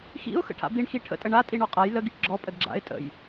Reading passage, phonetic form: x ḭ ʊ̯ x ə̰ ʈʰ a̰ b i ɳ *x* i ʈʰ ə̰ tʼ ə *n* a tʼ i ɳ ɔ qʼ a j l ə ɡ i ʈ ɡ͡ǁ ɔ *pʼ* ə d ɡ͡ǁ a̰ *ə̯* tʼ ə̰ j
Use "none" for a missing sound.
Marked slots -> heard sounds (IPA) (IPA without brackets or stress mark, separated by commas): x, ɳ, pʼ, ɪ̯